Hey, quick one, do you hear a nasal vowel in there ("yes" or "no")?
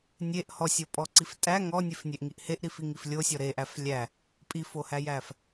no